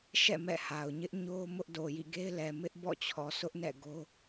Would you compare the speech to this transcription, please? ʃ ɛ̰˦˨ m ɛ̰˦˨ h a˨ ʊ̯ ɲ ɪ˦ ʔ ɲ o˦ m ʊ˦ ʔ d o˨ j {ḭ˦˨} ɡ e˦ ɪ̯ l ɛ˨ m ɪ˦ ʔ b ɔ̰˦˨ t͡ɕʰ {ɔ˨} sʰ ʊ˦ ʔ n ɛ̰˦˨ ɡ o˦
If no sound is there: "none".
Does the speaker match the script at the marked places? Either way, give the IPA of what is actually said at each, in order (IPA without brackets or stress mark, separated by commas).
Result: ḭ˦˨, ɔ˨